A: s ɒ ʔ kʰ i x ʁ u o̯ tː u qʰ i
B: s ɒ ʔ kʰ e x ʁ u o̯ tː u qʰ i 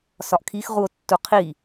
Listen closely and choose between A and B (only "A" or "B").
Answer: A